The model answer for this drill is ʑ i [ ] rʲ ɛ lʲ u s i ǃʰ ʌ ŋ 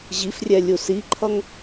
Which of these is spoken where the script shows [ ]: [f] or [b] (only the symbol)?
f